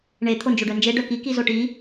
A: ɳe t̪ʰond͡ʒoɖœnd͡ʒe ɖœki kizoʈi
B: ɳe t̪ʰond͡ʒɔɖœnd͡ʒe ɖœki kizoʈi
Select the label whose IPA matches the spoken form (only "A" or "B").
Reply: A